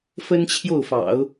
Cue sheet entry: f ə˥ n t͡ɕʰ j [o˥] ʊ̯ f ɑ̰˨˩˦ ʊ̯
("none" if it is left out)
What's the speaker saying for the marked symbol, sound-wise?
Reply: o˥˩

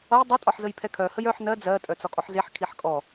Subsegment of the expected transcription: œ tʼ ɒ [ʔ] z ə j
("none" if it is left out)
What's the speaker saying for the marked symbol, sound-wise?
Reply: ħ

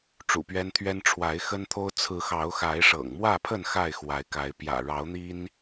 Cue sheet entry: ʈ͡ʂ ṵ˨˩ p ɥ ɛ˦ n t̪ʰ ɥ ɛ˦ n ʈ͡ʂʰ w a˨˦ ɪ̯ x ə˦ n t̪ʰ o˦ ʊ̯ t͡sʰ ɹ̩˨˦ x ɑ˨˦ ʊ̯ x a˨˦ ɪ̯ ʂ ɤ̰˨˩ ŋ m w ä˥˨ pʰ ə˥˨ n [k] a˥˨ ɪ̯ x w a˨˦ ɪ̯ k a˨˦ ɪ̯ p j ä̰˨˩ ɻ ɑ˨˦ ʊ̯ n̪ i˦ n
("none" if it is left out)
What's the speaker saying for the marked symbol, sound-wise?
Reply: x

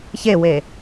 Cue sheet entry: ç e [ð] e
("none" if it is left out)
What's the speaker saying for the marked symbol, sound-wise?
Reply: w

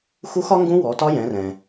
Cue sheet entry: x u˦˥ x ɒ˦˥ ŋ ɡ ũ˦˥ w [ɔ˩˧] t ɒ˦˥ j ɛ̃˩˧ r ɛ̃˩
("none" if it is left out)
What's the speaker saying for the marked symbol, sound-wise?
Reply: ɔ˩˧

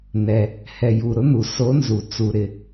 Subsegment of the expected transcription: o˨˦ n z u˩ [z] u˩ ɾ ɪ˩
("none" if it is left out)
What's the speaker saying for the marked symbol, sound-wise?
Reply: t͡s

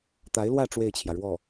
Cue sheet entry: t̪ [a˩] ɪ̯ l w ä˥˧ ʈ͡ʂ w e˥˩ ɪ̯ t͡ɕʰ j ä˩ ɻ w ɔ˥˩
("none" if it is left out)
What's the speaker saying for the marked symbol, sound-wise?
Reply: a˧˥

